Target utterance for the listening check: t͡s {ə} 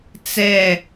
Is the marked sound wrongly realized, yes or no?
yes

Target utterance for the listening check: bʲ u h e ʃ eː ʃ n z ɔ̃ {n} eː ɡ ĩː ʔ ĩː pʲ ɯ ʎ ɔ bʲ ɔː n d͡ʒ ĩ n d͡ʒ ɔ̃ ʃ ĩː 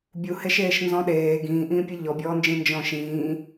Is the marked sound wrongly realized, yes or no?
yes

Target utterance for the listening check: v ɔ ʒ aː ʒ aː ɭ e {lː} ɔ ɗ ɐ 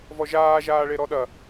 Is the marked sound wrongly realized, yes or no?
yes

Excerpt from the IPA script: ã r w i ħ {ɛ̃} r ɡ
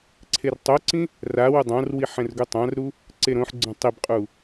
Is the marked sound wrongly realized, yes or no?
no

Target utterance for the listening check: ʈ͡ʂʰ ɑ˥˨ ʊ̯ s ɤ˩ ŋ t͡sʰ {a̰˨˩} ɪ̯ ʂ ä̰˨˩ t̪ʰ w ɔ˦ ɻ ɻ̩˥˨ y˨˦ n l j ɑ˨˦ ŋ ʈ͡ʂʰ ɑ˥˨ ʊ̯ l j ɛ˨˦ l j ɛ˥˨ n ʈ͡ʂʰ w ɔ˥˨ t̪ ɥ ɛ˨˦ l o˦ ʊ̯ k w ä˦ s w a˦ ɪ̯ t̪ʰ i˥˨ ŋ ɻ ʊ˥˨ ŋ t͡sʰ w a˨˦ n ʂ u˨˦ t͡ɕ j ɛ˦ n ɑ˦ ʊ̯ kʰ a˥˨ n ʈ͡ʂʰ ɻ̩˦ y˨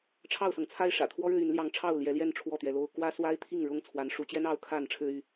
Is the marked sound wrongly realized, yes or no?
yes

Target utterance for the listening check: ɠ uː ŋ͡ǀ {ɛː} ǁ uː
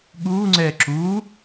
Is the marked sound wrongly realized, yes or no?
no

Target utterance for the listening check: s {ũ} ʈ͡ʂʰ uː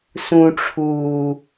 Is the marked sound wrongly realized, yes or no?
no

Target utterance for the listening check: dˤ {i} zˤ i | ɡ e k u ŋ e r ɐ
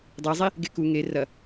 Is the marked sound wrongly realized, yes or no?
yes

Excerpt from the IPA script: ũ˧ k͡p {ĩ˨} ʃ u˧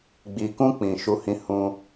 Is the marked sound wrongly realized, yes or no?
no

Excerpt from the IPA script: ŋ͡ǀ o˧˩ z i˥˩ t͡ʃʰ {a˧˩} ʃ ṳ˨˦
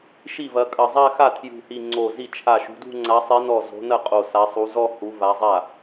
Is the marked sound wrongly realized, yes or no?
no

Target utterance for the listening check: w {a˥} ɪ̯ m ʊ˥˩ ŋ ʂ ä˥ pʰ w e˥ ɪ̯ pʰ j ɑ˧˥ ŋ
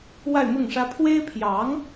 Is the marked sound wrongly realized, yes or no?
yes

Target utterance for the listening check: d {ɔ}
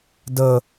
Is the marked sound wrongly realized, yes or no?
yes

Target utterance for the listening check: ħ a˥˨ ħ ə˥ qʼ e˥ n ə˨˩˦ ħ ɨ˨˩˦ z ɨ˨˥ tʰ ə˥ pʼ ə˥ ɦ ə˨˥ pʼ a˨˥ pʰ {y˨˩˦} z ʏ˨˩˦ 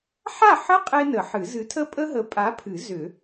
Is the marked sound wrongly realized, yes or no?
yes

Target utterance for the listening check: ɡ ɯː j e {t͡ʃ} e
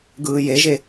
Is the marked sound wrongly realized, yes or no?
yes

